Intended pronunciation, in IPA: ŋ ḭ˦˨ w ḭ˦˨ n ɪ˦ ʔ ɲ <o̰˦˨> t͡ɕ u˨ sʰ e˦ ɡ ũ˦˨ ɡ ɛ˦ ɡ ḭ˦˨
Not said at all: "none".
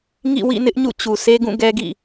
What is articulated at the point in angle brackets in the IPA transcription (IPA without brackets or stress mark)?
ṵ˦˨